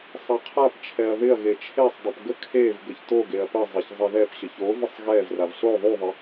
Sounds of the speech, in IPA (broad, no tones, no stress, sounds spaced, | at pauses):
sˤ ɛ qʰ a p t͡ʃʰ ɛ ɐ̯ ð ɪ ɐ̯ ɣ e t͡ʃʰ e sˤ dˤ o p ɡ ə kʰ e v ɡ ə ç t o ɡ e ɐ̯ p ə zˤ e ç zˤ ɪ ð ɛ p ɕ ə ç o v ə sˤ ɣ ɛ v r a v ɬ o ðˤ u ðˤ ɪ